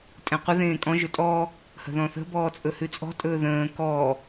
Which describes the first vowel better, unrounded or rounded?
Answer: unrounded